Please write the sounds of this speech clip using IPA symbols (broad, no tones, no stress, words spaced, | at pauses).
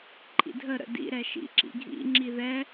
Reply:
ǃʼḭdʱə ɾə̰ dḭ ɾɛʃḭ ǁḭɡʱḭ ŋ͡ǁiðɛ